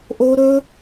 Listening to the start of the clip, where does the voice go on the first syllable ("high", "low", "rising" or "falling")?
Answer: high